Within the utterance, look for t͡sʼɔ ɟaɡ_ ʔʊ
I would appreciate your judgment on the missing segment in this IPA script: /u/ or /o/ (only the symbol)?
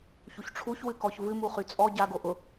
o